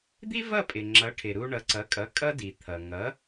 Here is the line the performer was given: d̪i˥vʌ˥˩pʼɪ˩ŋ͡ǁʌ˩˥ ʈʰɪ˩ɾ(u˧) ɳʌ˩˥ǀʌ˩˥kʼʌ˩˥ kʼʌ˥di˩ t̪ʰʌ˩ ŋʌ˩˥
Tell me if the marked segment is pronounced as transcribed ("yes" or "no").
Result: yes